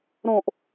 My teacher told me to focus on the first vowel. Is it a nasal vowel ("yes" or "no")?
yes